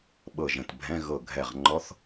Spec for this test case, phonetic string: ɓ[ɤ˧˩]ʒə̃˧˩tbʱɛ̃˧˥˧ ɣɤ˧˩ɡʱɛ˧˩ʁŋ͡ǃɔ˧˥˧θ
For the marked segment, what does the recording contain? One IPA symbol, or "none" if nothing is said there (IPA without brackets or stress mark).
ɤ˧˩